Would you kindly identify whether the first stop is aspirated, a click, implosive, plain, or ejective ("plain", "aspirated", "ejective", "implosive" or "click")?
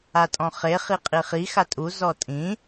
ejective